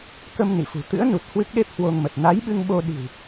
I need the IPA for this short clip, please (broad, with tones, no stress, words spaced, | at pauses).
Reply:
kə˧m nḭ˧˨fṳ˨˩ t̪ɨ̰˧˥ə̯nu˨˩t̚ hwɨ˦˥k̚ɗe˦˥p̚ hwo˧ŋmə˨˩t̚ na˨˦jɓɨ˧ŋɓo˧ ɗi̤˨˩w